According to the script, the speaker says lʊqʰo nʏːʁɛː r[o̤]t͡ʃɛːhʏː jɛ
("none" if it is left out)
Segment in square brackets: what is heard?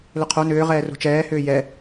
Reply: o̤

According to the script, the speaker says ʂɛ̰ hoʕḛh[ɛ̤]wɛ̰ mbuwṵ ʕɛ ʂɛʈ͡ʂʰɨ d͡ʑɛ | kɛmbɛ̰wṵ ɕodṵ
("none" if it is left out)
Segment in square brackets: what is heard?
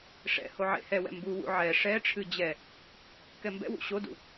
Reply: ɛ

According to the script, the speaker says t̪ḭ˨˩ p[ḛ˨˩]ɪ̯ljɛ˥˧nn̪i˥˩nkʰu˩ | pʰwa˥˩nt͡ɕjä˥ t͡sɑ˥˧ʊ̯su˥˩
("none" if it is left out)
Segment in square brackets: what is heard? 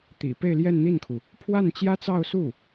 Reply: e˥˧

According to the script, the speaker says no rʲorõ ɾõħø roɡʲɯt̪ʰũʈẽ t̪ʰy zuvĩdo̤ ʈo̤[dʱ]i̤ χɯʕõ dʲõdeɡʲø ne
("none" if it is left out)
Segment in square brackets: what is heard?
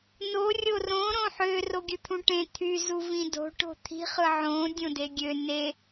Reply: t̪ʰ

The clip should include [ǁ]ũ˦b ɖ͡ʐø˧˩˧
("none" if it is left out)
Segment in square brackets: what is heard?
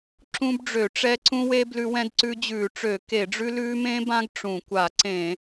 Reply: ǁ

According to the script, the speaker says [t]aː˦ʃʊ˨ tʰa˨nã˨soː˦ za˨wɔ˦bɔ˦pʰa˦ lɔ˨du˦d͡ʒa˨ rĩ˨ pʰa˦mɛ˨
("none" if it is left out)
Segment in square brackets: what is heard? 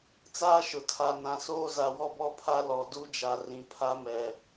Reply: t͡s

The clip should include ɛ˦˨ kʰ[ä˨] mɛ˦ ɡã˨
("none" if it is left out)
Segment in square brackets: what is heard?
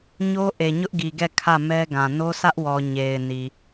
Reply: ä˦˨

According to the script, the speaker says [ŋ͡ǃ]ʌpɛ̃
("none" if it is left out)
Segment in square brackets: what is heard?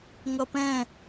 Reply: ŋ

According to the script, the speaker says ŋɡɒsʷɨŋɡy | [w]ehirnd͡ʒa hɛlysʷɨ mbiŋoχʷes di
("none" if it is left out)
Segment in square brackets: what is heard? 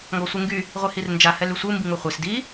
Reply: ʁʷ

